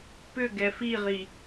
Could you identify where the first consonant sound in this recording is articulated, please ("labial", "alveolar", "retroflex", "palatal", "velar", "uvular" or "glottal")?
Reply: labial